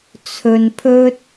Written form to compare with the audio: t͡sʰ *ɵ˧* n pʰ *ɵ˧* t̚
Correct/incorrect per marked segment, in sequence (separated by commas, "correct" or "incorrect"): correct, incorrect